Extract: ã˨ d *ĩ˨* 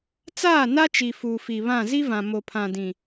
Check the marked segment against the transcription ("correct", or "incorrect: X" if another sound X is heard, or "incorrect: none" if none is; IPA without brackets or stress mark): correct